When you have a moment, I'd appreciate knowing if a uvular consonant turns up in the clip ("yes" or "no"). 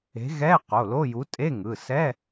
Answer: yes